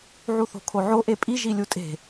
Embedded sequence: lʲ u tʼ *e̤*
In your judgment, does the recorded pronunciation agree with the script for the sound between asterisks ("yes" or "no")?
yes